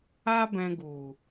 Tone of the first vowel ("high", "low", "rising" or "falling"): high